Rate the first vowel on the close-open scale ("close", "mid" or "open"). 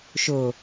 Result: close